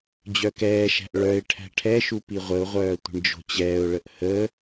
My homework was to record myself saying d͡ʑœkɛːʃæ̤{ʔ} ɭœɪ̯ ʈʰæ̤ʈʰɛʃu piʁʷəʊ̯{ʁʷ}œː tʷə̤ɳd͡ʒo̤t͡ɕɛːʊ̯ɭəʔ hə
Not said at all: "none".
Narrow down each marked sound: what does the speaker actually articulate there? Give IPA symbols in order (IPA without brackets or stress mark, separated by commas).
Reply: ʔ, ʁʷ